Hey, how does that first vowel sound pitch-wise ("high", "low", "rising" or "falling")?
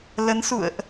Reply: rising